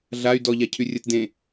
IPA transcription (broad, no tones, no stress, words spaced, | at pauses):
ɮay̯ dɔʎacʰy rʲɘt dẽ